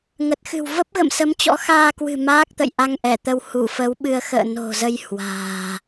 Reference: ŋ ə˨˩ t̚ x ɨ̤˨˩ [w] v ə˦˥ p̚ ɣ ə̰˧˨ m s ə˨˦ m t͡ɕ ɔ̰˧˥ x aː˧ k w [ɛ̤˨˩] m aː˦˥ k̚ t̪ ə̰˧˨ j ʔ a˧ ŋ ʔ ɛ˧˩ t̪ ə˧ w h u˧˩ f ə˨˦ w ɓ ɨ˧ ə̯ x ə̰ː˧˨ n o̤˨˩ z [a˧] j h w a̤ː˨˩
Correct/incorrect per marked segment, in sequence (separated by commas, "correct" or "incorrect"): correct, incorrect, incorrect